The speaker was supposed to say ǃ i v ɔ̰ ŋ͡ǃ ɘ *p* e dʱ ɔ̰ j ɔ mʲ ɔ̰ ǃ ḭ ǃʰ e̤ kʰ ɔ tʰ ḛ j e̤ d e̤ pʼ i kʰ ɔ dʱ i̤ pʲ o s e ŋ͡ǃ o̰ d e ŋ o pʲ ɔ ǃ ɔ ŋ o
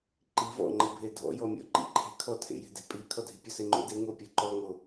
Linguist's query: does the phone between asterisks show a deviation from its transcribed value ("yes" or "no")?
yes